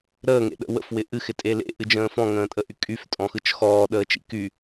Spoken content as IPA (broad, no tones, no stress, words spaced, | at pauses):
ɾəːŋḛɗə̰ wə̰fwɪ ʔɨxɪtʼe lḛʔɨd͡ʒə̃ː fɔ̃ŋə̃ːtʼəʔy kʼyftʼɔ̃xɯt͡ʃ xɔːɗəːt͡ʃḭ ky